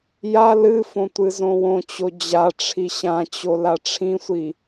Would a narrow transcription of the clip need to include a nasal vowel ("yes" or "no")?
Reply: yes